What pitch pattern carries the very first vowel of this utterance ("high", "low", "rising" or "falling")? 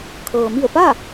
low